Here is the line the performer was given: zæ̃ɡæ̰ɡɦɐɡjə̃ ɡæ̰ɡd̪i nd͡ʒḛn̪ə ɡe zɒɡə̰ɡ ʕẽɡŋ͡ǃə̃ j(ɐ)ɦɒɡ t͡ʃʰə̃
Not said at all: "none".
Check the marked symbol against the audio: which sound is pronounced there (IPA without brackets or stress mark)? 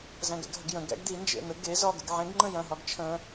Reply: ɐ̃